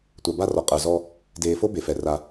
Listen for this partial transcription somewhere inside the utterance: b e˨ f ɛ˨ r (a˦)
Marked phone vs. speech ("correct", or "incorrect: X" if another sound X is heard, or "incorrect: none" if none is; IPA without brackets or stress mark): correct